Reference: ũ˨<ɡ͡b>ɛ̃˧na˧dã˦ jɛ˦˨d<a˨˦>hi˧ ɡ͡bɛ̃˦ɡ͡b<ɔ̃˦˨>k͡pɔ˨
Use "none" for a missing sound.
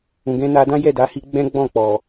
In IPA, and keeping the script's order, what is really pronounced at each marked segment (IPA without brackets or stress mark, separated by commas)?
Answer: ɡ, a˨˦, ɔ̃˦˨